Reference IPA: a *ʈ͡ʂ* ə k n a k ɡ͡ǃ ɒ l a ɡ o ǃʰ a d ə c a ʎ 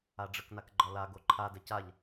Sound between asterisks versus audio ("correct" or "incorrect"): incorrect